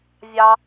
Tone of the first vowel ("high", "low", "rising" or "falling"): high